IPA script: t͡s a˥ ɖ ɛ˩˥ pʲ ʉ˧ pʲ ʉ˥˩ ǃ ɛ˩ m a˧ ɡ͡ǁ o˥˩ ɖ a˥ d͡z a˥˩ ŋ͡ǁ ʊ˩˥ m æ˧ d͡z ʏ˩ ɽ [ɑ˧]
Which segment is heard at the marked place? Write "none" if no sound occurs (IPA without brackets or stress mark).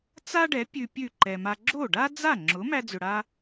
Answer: a˧